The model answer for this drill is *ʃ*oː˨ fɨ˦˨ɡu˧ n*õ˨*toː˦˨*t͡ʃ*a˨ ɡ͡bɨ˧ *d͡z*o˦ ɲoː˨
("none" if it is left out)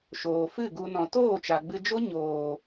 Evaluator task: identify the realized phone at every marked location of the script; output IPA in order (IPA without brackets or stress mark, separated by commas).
ʃ, ɔ̃˨, t͡ʃ, d͡ʒ